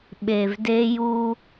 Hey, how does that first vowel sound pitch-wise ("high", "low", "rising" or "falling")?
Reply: low